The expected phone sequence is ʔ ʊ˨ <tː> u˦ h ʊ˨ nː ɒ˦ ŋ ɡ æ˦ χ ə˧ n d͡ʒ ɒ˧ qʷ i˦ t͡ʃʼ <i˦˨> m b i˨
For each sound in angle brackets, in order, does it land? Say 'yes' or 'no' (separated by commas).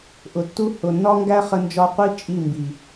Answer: yes, yes